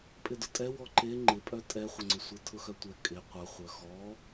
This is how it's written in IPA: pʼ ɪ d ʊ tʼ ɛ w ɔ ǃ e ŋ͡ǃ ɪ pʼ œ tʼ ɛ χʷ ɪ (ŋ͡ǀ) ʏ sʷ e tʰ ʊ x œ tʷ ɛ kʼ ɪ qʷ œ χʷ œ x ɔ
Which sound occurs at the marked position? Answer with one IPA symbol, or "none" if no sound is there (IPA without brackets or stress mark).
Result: ŋ͡ǀ